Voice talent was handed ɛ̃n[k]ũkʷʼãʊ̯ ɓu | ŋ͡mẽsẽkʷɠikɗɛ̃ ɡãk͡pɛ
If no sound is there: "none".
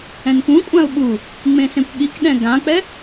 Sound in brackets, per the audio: k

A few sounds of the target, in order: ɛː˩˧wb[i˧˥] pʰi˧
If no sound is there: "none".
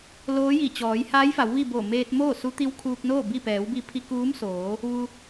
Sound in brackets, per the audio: i˧˥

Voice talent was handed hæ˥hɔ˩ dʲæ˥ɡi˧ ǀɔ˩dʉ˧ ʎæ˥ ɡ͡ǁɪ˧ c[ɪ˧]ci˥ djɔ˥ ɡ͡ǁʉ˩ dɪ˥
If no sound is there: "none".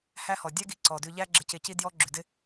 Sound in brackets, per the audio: ɪ˧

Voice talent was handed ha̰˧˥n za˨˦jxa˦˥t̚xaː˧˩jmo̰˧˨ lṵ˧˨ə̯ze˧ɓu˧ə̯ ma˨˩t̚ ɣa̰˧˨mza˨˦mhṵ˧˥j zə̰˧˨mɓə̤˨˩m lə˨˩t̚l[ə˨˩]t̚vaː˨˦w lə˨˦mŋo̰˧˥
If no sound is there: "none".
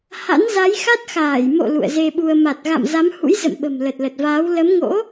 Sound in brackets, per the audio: ə˨˩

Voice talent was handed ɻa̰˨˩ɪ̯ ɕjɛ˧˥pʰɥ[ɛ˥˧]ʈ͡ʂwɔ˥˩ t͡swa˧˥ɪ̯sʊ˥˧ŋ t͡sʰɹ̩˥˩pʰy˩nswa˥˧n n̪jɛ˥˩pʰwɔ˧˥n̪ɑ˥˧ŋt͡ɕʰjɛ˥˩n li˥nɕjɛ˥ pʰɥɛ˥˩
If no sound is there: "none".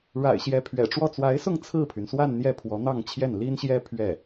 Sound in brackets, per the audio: ɛ̰˨˩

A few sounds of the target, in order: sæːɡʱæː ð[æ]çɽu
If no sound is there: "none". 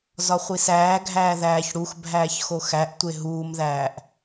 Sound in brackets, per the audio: æː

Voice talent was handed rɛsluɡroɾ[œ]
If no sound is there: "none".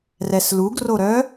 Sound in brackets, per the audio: œ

